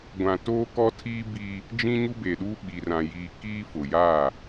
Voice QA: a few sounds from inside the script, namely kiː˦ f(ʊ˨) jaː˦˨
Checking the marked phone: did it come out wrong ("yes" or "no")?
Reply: no